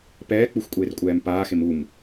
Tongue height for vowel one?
mid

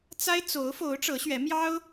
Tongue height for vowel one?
low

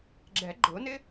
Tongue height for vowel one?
mid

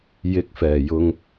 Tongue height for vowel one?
high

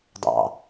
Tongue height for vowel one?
low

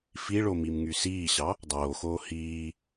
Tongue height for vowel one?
high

